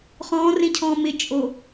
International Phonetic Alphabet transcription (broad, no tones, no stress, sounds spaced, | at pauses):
χ ɔ̃ː r ẽ cʰ ɔ̃ː m ɪ t͡ʃʼ o